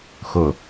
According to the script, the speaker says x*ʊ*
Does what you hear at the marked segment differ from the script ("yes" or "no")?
no